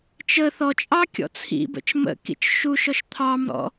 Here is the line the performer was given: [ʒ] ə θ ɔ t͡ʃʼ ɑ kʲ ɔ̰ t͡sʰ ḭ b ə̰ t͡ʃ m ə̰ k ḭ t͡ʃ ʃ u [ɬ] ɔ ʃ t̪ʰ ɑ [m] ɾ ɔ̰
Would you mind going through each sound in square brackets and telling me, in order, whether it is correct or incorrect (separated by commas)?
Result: incorrect, incorrect, correct